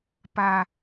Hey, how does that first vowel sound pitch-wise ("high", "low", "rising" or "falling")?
high